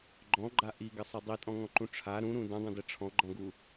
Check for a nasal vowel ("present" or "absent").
present